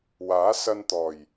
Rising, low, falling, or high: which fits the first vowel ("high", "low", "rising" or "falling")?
rising